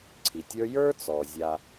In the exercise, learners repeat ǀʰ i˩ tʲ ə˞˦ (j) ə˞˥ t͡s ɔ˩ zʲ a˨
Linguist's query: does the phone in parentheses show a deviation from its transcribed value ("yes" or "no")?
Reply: no